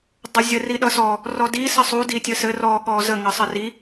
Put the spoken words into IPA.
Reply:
dˤ ʌ zʲ ə r i ɗ ʌ s ɔ | r ɔ d i s ə sˤ u d i tʲ ə s ɘ r ɔ ɠ ɔ z ə ŋ ʌ sˤ ə r i

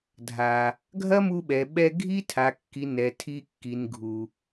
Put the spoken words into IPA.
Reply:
dʱ a˨ | ɡʱ ɐ˦ m u˧ ɓ ɛ˨ ɓ ɛ˧ ɡʱ i˦ tʰ a˨ kː i˨ n ɛ˨ tʰ i˧ kː i˨ n ɡʱ u˨

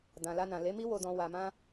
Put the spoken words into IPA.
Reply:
d ã˨ l a˧ n ã˨ l e˨˦ m i˦ w o˧ d ɔ̃˧ w a˧ m ã˦

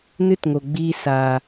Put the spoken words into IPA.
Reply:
n ɨ˦ t ŋ o˨ ɡ͡b iː˧ s a˨

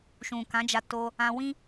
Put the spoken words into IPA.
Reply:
ʃ ũ˨ k ã˨˦ d͡ʒ a˧ t o˧ | ã˧ w ĩ˦

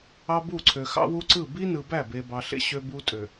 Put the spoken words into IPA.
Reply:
ɑ˦ b u˦˨ ǀʰ ø˨ x ɑ̰˦ w u˦ ǀ ɯ˦˨ b i˦ n ɯ˨ b æ˦˨ b e˨ b ɑ˨ ɬ ḛ˦ ɕ ø˦ b u˦ tʼ ø˨

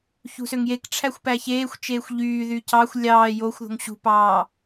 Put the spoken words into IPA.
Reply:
ç ṳ s ø ŋ j e k ʈ͡ʂʰ æ xʷ p æ ç eː xʷ t͡ʃ eː xʷ ʎ yː ð y c ɑ xʷ lʲ ɑː j o xʷ ð o̤ ŋ ɕ ṳ p ɑː

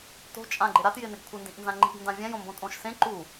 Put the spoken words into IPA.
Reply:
t o̤ t͡ʃʼ ã ɡ͡ǃ ɪ ɾ a t j ɪ n ɪ ɡ kʷʰ ɪ n d ĩ ʔ n z ã ŋ͡ǃ i̤ ɡ n d ã vʲ ɛ̃ j õ m b õ tʼ õ ʃ s ẽ ǃ u

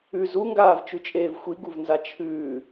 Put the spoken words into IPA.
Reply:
ʉ z u ŋ ɡ aː v t͡ʃ ʉ t͡ʃʼ eː v xʷ i ɡ u v n z a t͡ʃʰ ʉː

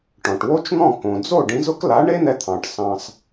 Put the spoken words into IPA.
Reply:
ʈ ɔ̃˩ ʈ w o˥ t͡ʃ n̪ ɔ̃˥˩ k õ˩ d͡z o˥˩ ɖ ĩ˩˥ z ʊ˥ k l a˩˥ ɳ e˥ n̪ ɛ˧ t̪ʰ ɑ̃˩ ʈ s ɑ̃˧ s

